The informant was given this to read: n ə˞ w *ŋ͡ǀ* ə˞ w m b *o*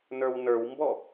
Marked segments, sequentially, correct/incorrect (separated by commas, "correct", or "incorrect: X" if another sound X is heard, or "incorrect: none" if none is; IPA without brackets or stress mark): incorrect: n, incorrect: ɔ